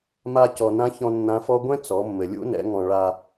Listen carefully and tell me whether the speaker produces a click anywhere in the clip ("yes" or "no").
no